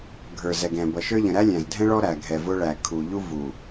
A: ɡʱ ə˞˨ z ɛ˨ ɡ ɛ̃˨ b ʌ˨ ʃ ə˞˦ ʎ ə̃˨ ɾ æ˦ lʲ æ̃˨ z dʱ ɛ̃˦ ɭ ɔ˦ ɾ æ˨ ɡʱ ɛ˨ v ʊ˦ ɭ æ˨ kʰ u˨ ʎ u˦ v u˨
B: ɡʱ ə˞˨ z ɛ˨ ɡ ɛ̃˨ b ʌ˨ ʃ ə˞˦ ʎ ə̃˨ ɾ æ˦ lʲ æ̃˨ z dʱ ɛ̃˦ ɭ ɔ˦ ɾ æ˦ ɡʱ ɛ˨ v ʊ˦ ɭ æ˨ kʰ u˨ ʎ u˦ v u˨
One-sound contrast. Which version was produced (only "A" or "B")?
A